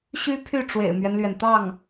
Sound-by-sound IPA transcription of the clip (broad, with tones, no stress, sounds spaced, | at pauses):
ɕ y˥ pʰ y˥˩ ʈ͡ʂ w ḛ˨˩ ɪ̯ m ɥ ɛ˦ n l ɥ ɛ˩ n t̪ ɑ˥˩ ŋ